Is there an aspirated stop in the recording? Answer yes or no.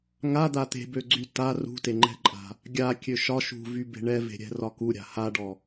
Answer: no